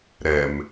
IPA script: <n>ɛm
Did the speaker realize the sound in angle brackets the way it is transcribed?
no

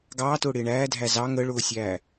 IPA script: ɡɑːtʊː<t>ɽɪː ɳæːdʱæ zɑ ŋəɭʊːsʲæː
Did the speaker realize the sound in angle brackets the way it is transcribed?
no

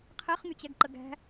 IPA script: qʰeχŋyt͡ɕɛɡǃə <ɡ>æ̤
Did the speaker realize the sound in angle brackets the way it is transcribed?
yes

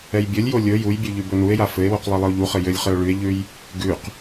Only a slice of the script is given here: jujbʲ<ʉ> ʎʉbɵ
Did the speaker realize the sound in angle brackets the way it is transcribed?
yes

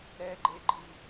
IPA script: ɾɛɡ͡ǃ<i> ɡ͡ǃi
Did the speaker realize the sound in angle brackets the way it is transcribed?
no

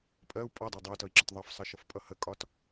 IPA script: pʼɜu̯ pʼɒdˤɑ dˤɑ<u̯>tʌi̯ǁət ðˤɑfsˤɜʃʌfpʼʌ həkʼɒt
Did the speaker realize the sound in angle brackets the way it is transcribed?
yes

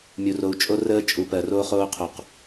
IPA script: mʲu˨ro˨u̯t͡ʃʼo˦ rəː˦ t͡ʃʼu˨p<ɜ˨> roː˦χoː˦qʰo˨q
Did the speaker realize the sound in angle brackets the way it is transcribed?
yes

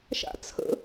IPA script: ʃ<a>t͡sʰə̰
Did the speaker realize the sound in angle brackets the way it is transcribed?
no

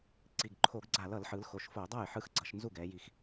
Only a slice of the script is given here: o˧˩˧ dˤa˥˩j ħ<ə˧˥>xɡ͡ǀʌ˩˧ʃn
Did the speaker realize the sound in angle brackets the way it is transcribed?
no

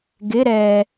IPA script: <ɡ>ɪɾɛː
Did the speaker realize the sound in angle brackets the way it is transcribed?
yes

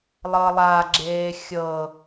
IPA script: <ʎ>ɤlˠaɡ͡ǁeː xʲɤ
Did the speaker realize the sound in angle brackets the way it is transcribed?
no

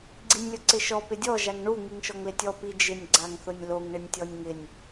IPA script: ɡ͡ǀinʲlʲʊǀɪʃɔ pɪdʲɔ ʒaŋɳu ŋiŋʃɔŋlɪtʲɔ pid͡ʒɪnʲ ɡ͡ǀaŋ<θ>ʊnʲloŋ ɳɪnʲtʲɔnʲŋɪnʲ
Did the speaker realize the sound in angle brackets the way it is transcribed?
yes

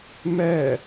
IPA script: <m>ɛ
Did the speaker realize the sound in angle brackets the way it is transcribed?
yes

